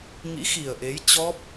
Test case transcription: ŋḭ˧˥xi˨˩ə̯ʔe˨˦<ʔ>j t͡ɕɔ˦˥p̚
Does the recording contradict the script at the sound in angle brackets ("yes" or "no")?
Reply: yes